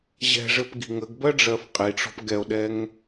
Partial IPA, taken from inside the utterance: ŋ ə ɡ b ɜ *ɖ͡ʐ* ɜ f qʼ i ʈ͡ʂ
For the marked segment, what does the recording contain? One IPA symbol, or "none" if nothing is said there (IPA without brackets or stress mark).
ɖ͡ʐ